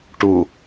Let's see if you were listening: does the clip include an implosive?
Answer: no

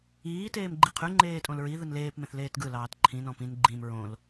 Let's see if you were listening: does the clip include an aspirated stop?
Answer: yes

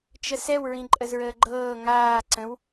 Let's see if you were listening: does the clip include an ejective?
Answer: yes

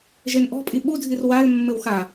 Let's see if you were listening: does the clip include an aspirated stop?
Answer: no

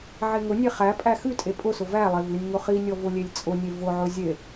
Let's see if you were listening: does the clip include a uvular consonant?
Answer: yes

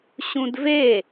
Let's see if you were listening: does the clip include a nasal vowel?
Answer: yes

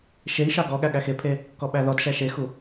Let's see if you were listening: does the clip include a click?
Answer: no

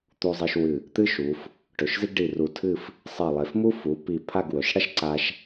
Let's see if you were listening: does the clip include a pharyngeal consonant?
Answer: no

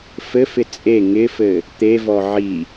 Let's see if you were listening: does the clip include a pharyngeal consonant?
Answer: yes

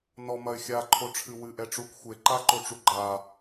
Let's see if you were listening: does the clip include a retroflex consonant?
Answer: yes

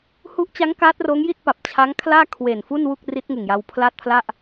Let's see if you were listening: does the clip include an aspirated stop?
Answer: yes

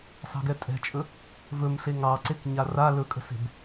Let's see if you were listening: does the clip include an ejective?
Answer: yes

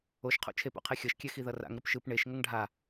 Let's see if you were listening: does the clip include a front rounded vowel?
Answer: no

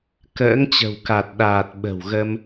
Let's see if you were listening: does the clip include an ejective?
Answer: no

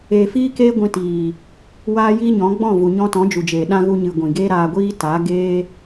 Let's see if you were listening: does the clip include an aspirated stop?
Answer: no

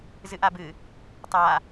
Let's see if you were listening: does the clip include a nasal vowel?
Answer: no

